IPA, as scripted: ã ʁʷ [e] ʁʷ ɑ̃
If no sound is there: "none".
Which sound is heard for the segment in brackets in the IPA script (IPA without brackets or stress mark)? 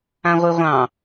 i